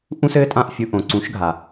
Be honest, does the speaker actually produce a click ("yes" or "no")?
yes